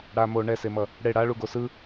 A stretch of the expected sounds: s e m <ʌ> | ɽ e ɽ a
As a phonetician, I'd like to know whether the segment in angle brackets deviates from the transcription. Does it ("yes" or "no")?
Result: no